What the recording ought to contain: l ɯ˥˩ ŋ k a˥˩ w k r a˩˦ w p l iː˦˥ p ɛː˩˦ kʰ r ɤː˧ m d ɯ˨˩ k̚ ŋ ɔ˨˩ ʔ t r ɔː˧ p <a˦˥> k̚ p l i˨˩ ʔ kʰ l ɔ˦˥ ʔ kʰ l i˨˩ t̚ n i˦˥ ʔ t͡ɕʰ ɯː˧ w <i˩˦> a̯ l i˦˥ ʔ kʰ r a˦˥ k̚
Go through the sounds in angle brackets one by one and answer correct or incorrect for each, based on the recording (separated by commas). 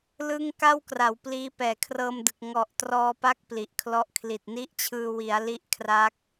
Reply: correct, correct